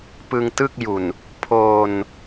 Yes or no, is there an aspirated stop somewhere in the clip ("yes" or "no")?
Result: yes